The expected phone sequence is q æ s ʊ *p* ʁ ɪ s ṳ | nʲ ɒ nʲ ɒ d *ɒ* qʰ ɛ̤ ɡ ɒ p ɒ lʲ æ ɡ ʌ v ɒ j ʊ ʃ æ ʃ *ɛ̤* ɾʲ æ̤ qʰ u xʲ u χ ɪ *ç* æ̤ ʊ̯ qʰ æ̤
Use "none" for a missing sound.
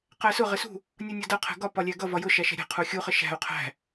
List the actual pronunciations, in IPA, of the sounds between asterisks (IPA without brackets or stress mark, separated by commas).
none, ʌ, ɛ̤, ʃ